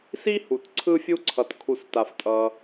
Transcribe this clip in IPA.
s i˥ h u˩ t ǀʰ ɯ˥ fʲ u˥ ǀʰ ʌ˩ t kʰ u˧ s t a˩ f tʼ ʌ˩

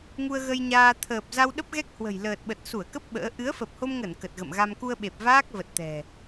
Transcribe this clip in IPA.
ŋ u˧ ə̯ ɣ ə˧ j ɲ aː˧ t̪ʰ əː˨˩ p̚ z a˧ w ɗ ə˦˥ p̚ ɣ ɛ˦˥ k̚ h w ə̤˨˩ j l əː˨˩ t̚ ɓ ə˨˩ t̚ s u˧˩ ə̯ k ə˦˥ p̚ ɓ ə̰ː˧˥ ʔ ɨ˨˦ ə̯ f ə˨˩ p̚ h o˧ m ŋ ə˧˩ n k ə˨˩ t̚ ɣ ə̰˧˨ m ɣ a˧ m k u˧ ə̯ ɓ e˨˩ p̚ v aː˦˥ k̚ v ə˨˩ t̚ t̪ ɛ̤˨˩

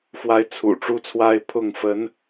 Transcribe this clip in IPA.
f w a˧˥ ɪ̯ t͡sʰ ṵ˨˩ ʈ͡ʂ u˥ t͡sʰ w a˥ ɪ̯ pʰ ʊ˥˩ ŋ f ə˧˥ n

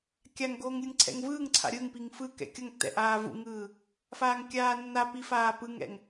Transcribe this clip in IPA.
kʲ a ŋ ɡ oː ŋ lʲ ɯ ŋ ǀʰ ɛ̰ ŋ v ɯː ŋ ǀʰ a̰ ɾʲ ɯ ŋ p i ŋ f ɯ k ɛ̰ kʲ ʌ ŋ tː ɛ̰ ʔ aː v ṵ ŋ ɯː | f aː ŋ kʲ aː nː a p i f aː p ɯ ŋ ɛ̰ ŋ

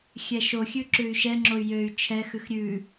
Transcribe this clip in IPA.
xʲ ɛ ʃ o xʲ ʉ ǁ ʉ y̯ ʃ ɛ ŋ͡ǁ o y̯ j ø y̯ t͡ʃʰ ɛ x ʉ x ɾʲ ʉ

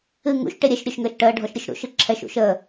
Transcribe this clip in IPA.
ɨ ŋ ṵ ʃ ʈ e ɾʲ ɛ ʃ ɾʲ ø ʃ ŋ əː ʃ ʈ əː ɖʱ ɔ ʃ ɾʲ ɨ ʃ ɾ ṵ ʃ ɨ ǁʰ ɛ ʃ ṵ ʃ əː

